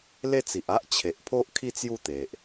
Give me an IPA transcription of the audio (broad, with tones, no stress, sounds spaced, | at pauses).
l e˥˧ t͡s i˨ ʔ a˦ ʔ t͡ɕʰ e˨ ʔ pʰ o˦ ʔ kʰ i˦ t͡s j u˥˧ t̪ e˨ ʔ